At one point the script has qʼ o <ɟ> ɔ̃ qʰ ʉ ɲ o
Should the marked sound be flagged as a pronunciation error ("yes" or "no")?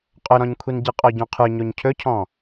no